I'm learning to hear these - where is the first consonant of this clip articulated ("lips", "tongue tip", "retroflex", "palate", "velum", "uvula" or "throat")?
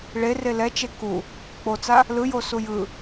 retroflex